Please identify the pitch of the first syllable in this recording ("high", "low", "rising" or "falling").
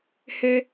high